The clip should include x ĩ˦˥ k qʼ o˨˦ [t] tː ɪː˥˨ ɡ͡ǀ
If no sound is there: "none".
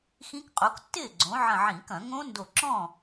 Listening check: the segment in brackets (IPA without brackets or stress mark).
k